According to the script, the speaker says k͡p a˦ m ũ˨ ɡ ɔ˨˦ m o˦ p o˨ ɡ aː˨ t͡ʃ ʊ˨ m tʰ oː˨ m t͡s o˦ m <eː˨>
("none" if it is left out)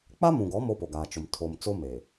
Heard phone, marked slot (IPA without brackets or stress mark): eː˨